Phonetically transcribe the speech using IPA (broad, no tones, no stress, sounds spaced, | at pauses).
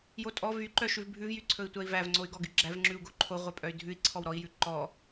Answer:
j o tʼ ɔ v y ǃ œ ʃ ʉ v bʱ ʉ v j y ǀʰ ɵ i̯ tʷ æ i̯ v æ v ŋ͡ǀ o y̯ ɡ ɔ ɡ y ɡ͡ǁ æ v ŋ͡ǁ ʉ u̯ ɡ o ǃʰ o ʁʷ œ pʼ œ y̯ dʱ ʉ i̯ ǀʰ ɔ w ɾ ɔ i̯ j ʉ ǃ ɔ